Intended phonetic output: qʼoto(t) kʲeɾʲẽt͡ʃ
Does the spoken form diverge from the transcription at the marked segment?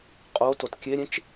no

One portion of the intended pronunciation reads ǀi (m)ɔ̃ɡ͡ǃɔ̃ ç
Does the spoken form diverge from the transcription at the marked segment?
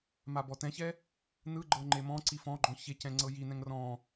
yes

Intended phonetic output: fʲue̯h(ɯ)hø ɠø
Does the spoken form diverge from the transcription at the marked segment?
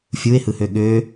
no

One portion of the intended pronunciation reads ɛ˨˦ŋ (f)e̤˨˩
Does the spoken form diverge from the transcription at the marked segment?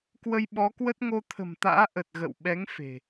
no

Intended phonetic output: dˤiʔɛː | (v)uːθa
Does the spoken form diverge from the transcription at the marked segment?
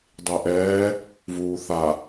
no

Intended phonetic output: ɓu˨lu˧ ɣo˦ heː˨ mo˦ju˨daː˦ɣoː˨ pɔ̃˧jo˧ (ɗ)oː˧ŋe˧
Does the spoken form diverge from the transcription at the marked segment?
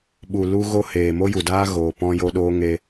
no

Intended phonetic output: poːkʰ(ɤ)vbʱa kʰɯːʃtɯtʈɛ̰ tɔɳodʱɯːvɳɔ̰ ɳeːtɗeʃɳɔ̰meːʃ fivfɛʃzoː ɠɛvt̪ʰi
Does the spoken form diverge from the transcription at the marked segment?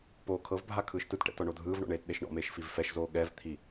no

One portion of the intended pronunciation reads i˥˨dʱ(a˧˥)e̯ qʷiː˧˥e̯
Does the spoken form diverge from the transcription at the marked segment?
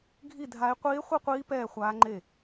no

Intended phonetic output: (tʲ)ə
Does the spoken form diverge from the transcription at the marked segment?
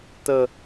yes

